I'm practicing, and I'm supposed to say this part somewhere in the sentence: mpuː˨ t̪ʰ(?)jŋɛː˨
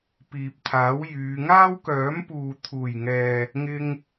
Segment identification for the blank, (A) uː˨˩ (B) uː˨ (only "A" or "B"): A